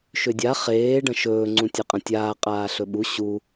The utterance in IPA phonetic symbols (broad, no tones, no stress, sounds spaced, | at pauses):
ʃ ʏ dʲ a χ eː ɖ ɐ̃ ʃ ɵː ŋ͡ǀ ũ tʲ e qʼ ɐ̃ tʲ aː qʼ aː ɬ ɵ ɓ u ɕ u